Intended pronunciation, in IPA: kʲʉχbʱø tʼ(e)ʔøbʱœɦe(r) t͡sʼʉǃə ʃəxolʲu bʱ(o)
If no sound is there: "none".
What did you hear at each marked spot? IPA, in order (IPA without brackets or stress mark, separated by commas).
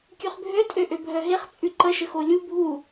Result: ø, χ, u